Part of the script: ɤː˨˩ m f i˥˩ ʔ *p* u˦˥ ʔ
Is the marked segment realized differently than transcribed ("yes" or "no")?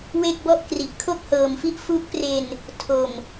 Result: yes